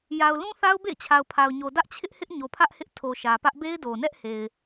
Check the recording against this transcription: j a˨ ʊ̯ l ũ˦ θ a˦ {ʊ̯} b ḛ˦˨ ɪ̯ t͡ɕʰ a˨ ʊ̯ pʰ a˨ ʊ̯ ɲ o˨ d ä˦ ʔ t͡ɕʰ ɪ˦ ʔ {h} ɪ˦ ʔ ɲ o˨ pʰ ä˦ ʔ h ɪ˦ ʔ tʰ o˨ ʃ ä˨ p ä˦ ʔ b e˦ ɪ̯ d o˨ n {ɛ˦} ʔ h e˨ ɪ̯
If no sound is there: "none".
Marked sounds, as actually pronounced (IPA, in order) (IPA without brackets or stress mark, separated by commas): ʊ̯, h, ɛ˦